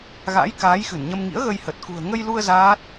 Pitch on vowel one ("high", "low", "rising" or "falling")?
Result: rising